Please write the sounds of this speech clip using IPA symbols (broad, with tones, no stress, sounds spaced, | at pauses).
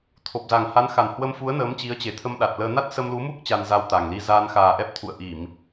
t̪ʰ o˨˩ p̚ z a˨˩ ŋ h a˨˦ n x a˨˩ n h w ə˧ m f u˨˦ ə̯ n əː˨˦ m t͡ɕ i˨˦ ə̯ t͡ɕ e˨˩ t̪ʰ ə˧ m ɗ a˨˩ t̚ l əː˧ n a˦˥ t̚ s ə˧ m l u˨˦ m u˦˥ k̚ t͡ɕ a˧ n z a˧ w t̪ a˨˩ ŋ l i˧ z aː˧ n x aː˨˩ ʔ ɛ˦˥ p̚ t̪ʰ ṵ˧˨ ə̯ ʔ i˧˩˨ m